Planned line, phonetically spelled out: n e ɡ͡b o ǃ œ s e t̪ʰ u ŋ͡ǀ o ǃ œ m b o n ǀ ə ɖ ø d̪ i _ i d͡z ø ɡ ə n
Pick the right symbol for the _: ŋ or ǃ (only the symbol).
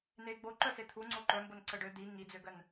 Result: ŋ